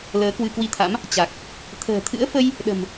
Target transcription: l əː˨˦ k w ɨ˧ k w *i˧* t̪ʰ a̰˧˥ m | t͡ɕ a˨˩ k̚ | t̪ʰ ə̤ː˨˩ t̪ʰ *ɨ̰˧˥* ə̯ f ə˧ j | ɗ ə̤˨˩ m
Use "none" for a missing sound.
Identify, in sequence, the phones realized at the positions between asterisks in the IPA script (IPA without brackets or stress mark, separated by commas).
i˧, ɨ̰˧˥